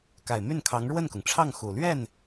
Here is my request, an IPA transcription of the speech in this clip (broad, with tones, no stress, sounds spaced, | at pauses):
k a˨˩ ɪ̯ m y˥˩ n kʰ ɑ˧˥ ŋ ɻ w ə˥˩ n k ʊ˩ ŋ ʈ͡ʂʰ ɑ˥˩ ŋ x u˨˩ l ɥ ɛ˥˩ n